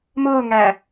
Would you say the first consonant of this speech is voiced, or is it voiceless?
voiced